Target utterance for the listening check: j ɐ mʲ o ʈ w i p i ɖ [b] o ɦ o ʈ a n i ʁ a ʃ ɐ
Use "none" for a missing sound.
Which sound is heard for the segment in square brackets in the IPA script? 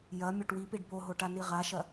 b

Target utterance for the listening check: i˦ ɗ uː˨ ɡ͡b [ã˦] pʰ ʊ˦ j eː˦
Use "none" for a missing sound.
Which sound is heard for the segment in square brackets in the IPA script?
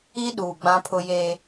ã˦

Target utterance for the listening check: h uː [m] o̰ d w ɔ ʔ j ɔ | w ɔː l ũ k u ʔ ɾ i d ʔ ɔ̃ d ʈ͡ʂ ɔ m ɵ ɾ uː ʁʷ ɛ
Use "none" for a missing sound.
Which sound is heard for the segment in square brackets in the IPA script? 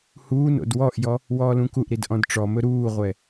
n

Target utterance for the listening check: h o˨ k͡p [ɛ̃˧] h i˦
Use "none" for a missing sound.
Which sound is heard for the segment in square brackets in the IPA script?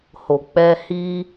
ɛ˧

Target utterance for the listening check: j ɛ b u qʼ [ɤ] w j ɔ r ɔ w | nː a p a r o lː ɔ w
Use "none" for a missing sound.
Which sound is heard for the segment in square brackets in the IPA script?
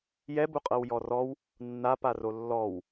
ɤ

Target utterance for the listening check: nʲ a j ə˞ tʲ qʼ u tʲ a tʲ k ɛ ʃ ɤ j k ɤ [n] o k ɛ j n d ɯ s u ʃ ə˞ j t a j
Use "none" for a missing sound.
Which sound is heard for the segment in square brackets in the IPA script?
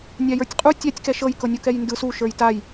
nʲ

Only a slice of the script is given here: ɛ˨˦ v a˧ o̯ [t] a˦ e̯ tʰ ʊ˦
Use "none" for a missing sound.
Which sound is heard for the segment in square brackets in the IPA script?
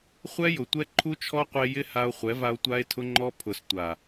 tʷ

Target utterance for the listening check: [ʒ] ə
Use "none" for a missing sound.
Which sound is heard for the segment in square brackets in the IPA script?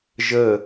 ʒ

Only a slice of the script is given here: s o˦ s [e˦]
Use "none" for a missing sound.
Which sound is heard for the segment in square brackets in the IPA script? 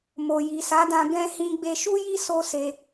e˧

